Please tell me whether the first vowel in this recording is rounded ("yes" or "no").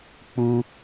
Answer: yes